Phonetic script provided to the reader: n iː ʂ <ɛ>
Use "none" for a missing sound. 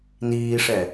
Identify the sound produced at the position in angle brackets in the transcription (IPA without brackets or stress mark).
ɛ